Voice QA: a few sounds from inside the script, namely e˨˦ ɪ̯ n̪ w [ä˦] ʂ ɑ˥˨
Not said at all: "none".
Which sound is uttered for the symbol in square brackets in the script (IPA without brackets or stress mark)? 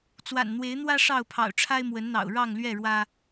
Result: ä˦